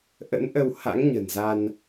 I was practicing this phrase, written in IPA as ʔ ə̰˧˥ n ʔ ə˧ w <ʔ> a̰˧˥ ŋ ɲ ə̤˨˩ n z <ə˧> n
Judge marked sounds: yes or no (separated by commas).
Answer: no, no